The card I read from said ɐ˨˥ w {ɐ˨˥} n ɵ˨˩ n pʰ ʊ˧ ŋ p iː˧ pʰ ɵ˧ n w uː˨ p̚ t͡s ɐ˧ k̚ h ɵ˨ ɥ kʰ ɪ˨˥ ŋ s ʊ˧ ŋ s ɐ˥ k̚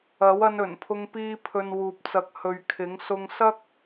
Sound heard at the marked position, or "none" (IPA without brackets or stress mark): ɐ˧